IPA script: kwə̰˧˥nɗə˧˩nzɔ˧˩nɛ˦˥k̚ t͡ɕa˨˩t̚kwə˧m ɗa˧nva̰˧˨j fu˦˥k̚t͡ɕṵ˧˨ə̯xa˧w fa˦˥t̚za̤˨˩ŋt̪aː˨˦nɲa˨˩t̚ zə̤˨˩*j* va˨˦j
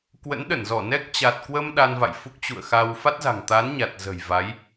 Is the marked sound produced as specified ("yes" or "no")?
yes